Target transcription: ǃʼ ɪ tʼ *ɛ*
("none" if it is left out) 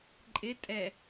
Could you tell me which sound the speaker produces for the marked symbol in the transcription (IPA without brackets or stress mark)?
ɛ